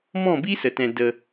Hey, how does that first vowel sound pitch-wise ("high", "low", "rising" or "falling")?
falling